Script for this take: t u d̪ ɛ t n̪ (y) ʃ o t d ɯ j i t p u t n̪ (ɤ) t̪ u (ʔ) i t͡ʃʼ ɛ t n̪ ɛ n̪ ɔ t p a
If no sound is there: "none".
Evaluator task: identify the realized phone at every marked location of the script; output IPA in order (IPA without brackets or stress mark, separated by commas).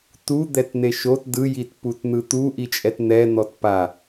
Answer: e, ɯ, ʔ